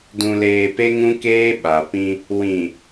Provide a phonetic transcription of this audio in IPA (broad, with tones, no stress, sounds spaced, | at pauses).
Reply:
d ũ˨ l eː˨ p e˦ ŋ ũ˦ k eː˦ ɓ a˨ p ĩ˦ | w ĩ˨